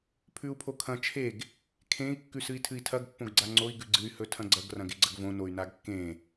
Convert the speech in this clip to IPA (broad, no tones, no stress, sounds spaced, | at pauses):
pʰ ʉ u̯ pʰ o kʰ ɐ̃ t͡ʃʰ e ɡ | kʰ ẽ i̯ kː ʉ s ɨ i̯ tʰ ɨ i̯ tʰ ɐ ɡ pː õ ɡ ɡ͡ǀ a ŋ͡ǀ o i̯ ɡ ʉ ɡ͡ǀ ɨ y̯ h ɵ tʰ ɐ̃ ɡ͡ǀ ɐ ɡ r ɐ̃ ɡ e ɡ͡ǀ ɐ ɡ v õ n o y̯ n a ɡ kː ẽ